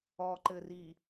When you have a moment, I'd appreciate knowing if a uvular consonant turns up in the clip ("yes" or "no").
no